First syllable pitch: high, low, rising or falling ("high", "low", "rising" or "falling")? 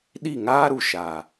falling